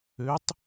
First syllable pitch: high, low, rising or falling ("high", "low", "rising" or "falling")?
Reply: rising